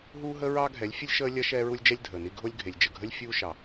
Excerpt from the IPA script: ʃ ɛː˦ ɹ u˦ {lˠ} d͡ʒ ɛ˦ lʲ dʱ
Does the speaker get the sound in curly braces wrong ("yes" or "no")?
yes